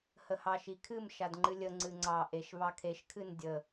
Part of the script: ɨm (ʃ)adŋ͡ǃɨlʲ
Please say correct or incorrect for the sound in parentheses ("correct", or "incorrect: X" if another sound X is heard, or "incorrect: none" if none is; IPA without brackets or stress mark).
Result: correct